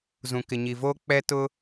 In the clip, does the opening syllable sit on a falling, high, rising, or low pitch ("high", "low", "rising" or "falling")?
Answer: low